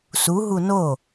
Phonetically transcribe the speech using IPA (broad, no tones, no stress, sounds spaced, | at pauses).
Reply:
s u ɦ u n o